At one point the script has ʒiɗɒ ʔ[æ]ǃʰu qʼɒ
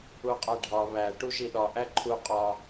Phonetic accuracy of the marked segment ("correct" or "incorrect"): correct